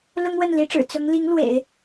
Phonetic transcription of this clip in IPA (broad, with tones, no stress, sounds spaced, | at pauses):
l ʊ˥ ŋ w ə˥˩ n l i˧˥ ʈ͡ʂ ɻ̩˨˩ t͡s ʊ˧˥ ŋ l i˧˥ ŋ l w ḛ˨˩˦ ɪ̯